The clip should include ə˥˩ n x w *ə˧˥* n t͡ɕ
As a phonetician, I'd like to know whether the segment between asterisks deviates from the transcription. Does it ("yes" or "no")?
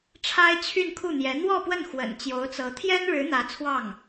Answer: yes